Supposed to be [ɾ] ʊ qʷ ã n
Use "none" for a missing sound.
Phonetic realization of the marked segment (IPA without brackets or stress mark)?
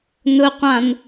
n